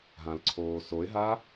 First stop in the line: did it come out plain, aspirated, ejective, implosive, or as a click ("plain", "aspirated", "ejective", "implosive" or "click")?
click